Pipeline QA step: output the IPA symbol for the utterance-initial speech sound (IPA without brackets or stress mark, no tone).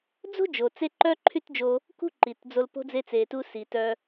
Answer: d͡z